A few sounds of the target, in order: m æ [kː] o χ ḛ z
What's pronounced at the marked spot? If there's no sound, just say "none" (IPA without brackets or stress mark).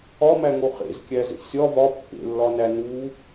ŋ